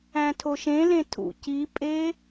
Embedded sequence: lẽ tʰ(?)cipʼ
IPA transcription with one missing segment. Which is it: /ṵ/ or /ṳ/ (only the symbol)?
ṵ